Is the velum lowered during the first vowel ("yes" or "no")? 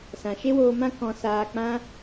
yes